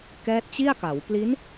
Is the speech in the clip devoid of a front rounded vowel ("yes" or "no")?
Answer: yes